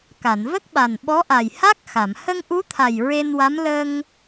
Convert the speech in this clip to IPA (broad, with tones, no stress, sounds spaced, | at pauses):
k a˨˩˨ n v ə˦˥ k̚ ɓ a˨˩ n ɓ ɔ˧˥ ʔ a˨˩ j h a˦˥ k̚ x a˨˩˨ m h ə˧ ŋ ʔ u˧˥ t̪ʰ a˨˩ j ɹ e˧ n w a˧˥ m l ə˧ ŋ